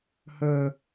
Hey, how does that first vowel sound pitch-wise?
low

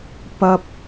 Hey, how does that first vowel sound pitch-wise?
high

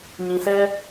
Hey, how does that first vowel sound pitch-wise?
low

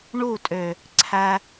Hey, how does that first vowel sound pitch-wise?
falling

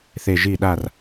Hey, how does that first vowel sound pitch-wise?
falling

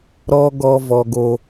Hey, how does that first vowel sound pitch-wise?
high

